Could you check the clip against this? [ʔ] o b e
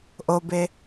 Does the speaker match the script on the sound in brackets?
yes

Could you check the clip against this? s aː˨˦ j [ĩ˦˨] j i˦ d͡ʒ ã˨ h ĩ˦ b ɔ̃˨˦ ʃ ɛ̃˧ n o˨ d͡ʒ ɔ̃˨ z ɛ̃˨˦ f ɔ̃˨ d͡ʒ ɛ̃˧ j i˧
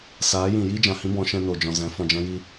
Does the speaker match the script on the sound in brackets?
no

